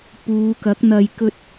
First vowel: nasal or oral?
oral